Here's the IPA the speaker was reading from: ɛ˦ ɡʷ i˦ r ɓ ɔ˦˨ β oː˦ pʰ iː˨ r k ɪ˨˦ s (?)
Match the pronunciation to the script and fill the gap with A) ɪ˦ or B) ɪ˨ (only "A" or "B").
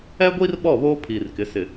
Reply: B